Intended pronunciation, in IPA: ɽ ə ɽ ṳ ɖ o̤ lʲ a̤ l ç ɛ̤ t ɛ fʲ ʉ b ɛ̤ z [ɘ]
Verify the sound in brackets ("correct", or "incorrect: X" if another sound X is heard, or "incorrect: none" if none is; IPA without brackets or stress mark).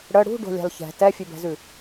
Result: incorrect: ʉ